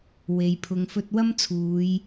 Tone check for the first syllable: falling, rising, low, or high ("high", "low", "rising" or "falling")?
low